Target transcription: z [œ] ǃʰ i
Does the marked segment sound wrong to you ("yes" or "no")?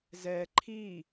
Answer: yes